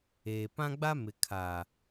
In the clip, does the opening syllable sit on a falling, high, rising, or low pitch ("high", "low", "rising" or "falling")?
low